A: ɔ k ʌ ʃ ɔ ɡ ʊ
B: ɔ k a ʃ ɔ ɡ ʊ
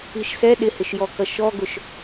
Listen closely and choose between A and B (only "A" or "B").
A